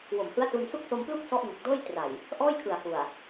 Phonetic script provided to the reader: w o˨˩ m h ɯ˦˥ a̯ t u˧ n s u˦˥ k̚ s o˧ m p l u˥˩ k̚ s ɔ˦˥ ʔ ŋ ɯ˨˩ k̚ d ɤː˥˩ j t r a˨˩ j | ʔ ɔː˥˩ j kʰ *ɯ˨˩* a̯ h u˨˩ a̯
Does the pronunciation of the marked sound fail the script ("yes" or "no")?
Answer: no